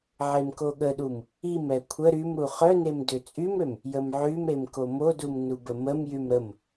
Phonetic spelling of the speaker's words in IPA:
ʕemkoɠəɗum | imɛ kʷʰə ɾym ɾuχœnem døt͡sʼymɾøm | jəmʕymɾem komodum nubəməmjym ɾəm

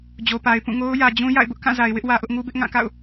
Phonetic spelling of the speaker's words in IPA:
d͡ʑo˨pa˨ɪ̯ pũ˦˨ŋo˦ʊ̯ jä˨d͡ʑũ˦ ja̰˦˨ɪ̯bʊ˦ʔkã˦˨za˨ɪ̯ wɪ˦ʔwä˨ʔʊ˦ʔ ŋu˦bɪ˦ʔ ŋã˦˨ka̰˦˨ʊ̯

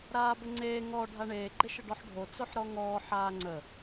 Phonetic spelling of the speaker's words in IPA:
ɾaːbəŋ͡ǀeː ŋɔ ɖʱaɳeː ɡ͡ǃɪʃəɖɔħɖʱo t͡soħɾɔŋɔː ħaːŋ͡ǀə

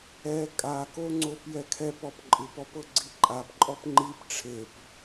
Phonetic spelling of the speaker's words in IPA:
ɛ kʼakoŋ͡ǀop jɛkʰɛp ɔpǃʼɯpɔpɤ ɡ͡ǀiǃʼapǃʼɔp ŋ͡ǃip ʈ͡ʂʰep

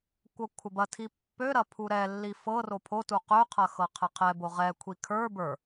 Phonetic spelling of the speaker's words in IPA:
kʷɤkʷʰɐbɐtʰi pːøɾɐ pʰuɾɛlːi fɤ ropʰotu qøqʰɐ xɤqʰɛqʰɛbo ʁɛkʷʰi kʰə˞ bə˞

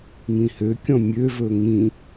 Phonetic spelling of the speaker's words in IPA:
ŋĩhøkʲɔ̃ mʲøvɵ ŋĩ

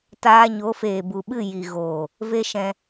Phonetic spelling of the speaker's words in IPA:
taː˧ɲo˨˦feː˨ bu˨ɓɨ˦˨ ji˨ɣoː˨ | ve˦ʃɛ̃˧

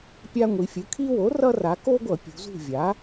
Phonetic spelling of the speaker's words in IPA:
pʲa˦ŋʷi˩˧ fʲɯ˩˧kʰi˦wo˩˥ rʌ˦ ra˩˧ko˦ɡʷʌ˧˩˧ pʲṳ˩˧zṳ˦˨vʲa˩˥

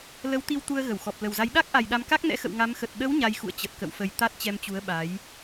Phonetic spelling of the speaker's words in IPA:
lə˨˦w t̪i˧wt̪u˧ə̯ ɣə˧˩wxɔ˨˩p̚ lə˨˩wza˨˦j ɗa˦˥k̚ʔa˨˩jɗa˧m ka˦˥k̚nɛ̰˧˥xə̰˧˨w ŋa˨˦mxə˨˩t̚ ɗə˨˦w ɲa˧jxṵ˧˨ə̯ t͡ɕə˨˩t̚kə̰˧˨wfə˨˩j t̪a˦˥t̚t͡ɕɛ˧mt͡ɕu˨˦ə̯ ɓa˨˦j

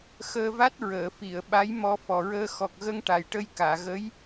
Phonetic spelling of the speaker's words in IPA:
xəː˧va˦˥t̚ ɹəː˨˩˨fi˨˩˨ə̯ɓa˧˥j mɔ˧ fɔ˨˩ɹəː˧ xɔ˨˩k̚ɣə˧ŋ ʈa˨˩jʈə˧jkaː˨˩˨ ɣə˧˥j

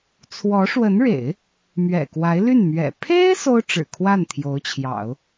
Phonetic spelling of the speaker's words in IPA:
t͡sʰwɔ˧˥ʂwə˧˥nɻḛ˨˩˦ɪ̯ | mɥɛ̰˨˩kwa˧˥ɪ̯ly˥˩nmɥɛ̰˨˩ pʰe˥ɪ̯ so˥ʊ̯ʈ͡ʂɻ̩˨˩kʰwa˥˩n t̪ʰjo˧˥ʊ̯t͡ɕʰjɑ̰˨˩˦ʊ̯

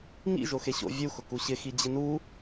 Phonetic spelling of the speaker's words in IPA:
ŋḭ ʒoxeɕo̰ vʲu xʊkuɕɪ xid͡ʑɪnu

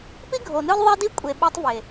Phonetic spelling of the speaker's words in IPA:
pi˦ɡʱo˨nɯ˦l ðˤɛ˦di˦kʷʼe˨ ɓo˦tˤve˨

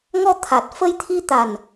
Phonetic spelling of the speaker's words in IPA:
ŋɔ˧t̪ʰa˨˩t̚fə˧j t̪ʰi˧t̪a˨˩n

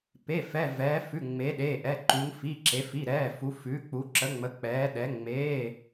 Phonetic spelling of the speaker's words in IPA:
pe˩˧˩fɛ˩˧˩ vɛː˩˧fʉ˩˧˩ ŋ͡me˩˧ɗe˩˧˩ʔɛ˩˧˩ ǃu˩˧ŋfi˩˧˩ ǁe˩˧ fi˩˧˩ɾɛː˩˧˩fu˩˧ fʉː˩˧k͡pu˩˧ǁə˩˧ŋ͡mə˩˧ k͡pɛː˩˧ɗɛ˩˧ ŋ͡meː˩˧˩

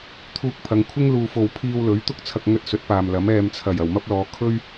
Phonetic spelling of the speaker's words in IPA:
t̪ʰuː˧k̚pʰɐ˨˧ŋkʷʰɪ˥ŋ luː˧fo˧w pʰiː˧wlɵ˨˥ɥt̪ʊ˥k̚ t͡sʰɐ˧k̚ŋɵ˧t̚sɵ˨˥t̚ paː˨mlɐ˨˥m ɛː˨mt͡sʰɐ˨˩j ɐ˨˩wmɐ˥p̚lɔː˨˧ kʰɵ˥ɥ

